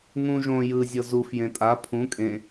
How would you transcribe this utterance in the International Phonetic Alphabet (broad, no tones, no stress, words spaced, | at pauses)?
ŋũ ʒõ jɯ zʲɤzuf jẽtʼa pʰũ kʼẽ